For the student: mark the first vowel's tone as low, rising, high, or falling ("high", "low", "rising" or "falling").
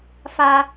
high